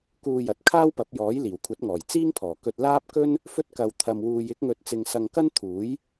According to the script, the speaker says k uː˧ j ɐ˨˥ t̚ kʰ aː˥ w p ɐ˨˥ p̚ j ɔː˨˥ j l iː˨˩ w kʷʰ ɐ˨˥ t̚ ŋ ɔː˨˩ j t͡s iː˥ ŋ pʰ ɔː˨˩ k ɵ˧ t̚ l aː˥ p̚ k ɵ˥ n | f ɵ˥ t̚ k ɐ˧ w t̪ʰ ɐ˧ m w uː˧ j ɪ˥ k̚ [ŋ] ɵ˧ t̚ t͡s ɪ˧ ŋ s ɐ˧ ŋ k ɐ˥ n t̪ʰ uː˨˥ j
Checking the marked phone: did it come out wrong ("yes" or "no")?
no